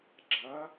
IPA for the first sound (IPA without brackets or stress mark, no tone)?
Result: ɡ͡ǁ